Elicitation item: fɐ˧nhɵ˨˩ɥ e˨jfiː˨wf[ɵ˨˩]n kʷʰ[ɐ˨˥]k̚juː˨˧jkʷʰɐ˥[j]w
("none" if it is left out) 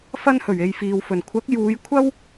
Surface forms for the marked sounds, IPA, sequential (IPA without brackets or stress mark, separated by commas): ɵ˨˩, ɐ˨˥, none